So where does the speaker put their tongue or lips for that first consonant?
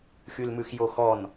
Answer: velum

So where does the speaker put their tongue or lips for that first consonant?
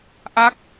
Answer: throat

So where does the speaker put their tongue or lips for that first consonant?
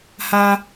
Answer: throat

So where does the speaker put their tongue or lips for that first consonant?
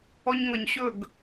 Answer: palate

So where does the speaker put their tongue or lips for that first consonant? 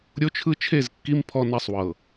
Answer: tongue tip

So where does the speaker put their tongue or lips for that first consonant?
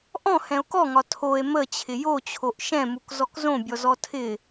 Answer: throat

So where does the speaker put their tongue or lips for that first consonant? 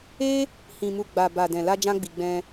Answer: throat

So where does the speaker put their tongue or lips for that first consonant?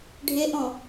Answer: retroflex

